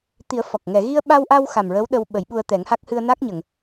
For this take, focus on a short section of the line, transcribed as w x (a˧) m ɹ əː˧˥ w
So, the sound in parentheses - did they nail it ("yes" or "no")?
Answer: no